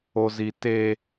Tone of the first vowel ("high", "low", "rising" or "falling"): high